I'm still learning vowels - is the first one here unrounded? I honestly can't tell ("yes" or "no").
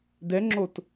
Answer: yes